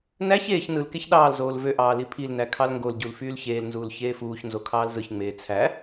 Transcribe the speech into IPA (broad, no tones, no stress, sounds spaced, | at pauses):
n æ ç eː ç n ɯ l k e ç ɗ ɑː l z oː l v ø ʔ ɑː l i pʰ i l n æ kʰ ɑ l ŋ ɡ o l ɟ u l f yː l ç eː l n z uː l ç eː f uː ç n z o kʰ ɑː l z ɯ ç ŋ͡m eː t͡sʰ æ